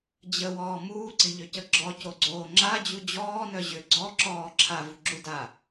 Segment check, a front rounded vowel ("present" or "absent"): present